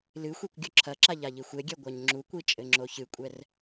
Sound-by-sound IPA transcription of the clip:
l ɨ xʷ i kʷ ɡʲ o ǁʰ ɐ ǁ a ʎ a ʎ i xʷ e ɡʲ ɛ ɡʷ a ɲ ŋ͡ǁ u kʷ i t͡ʃʼ ɘ ŋ͡ǁ o ç ɨ kʷʼ ɛ r

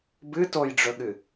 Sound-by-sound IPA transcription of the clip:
b ɨ t o j ɖ͡ʐ ɵ ɠ ɨ

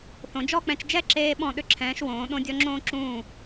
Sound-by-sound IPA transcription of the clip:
θ õ˩˧ d͡ʒ ɔ˥˧ k͡p ɛ̃˧ t͡ʃ d͡ʒ ɛ˥˧ ǁ eː˧ ɓ ɔ̃˧˩ ɗ ʏ˧˩ ǁʰ ɛ̃ː˩˧ ʃ w õː˩˧ ɗ õ˧ dʲ ɔ˧ ŋ͡ǁ õː˧ ǁ ũː˧˩

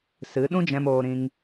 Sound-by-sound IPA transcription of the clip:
s ɨ˨˦ ɗ ũ˦ d͡ʒ ɛ̃˧ m oː˧ ɾ ĩ˧ ŋ

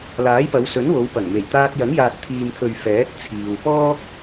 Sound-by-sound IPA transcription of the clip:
l aː˨˥ j p ɐ˨˧ w s ɵ˨˥ n w o˨˧ w p ɐ˨˩ ŋ m e˨˩ j t̪ aː˧ t̚ j ɐ˨˥ ŋ j aː˨ t̚ t̪ʰ iː˨ m t̪ʰ ɵ˨ ɥ f ɛː˨˥ t̚ t͡sʰ iː˨ w p ɔː˥ k̚

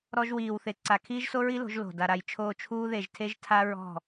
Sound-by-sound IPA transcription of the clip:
ɾ ɔ˦ ʒ w iː˧ w θ e˧ ǀ a˧ kʰ iː˦ ʒ s o˦ ɹ i˦ l o̤˨˦ ʒ l o̤˨ d a˧ ɾ a˧ j t͡ʃʰ oː˧ t͡ʃʰ uː˦ ð e˧ ʒ tʰ e˦ ʒ tʰ a˦ ɹ ɔ̤˦˨

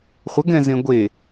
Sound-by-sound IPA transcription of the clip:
χʷ ə ɡ ɛ̃ z ẽ ɡʷ e

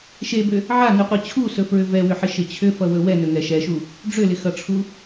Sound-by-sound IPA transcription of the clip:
ʃ e b ʏ | ʕ a n u qʷ ʌ t͡ɕʰ u s ɵ f ɹ ʏ v ɛ w ʏ ħ ɪ ʃ ɪ t͡ɕʰ ʏ f ʌ w ɵ w ɛ n ɵ ŋ ɛ ʃ ɛ ʃ u | ɖ͡ʐ ʏ l ɪ x ʌ ʈ͡ʂʰ u

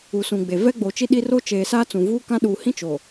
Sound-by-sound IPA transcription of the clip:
u˨ s ũ˨ ɡ͡b e˨ v ɛ˦ ɡ͡b o˨ t͡ʃ i˦ ɗ i˦ r o˦ t͡ʃ eː˨ s aː˦ t͡s ũ˨ v uː˦ k ã˦ ɗ uː˨ h ĩ˦ t͡ʃ o˨

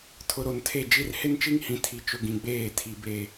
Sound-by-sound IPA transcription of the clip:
tʰ ʊ˨ ɾ o˨ n tʰ e˦˨ d͡ʒ i˦ r h ɪ˦ n t͡ʃ i˦ ŋ h ĩ˨ tʰ i˨ t͡ʃ ʊ˨ ɡ ĩ˨ ɡ͡b eː˦˨ tʰ i˨ b e˨

